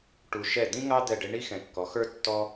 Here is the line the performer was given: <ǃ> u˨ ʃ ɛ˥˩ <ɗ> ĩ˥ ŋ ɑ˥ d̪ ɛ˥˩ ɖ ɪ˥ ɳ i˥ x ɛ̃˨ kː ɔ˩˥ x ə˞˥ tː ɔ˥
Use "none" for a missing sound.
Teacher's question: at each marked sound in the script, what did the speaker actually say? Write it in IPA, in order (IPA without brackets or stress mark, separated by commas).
ʈ, d̪